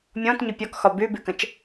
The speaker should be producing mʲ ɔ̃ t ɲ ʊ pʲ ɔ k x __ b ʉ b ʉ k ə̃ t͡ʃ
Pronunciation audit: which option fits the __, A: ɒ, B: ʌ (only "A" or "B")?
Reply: A